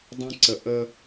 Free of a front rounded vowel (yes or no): yes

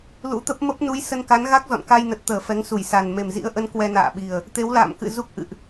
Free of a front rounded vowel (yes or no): yes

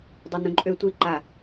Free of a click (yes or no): no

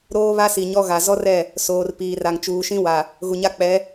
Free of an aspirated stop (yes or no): yes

